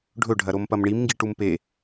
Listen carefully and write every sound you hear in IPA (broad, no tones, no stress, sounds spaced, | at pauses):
ɖʱ ɵ ɖʱ ɐ ɾ o m p ɐ m ɳ i m ŋ ɡ i ʈ u m p e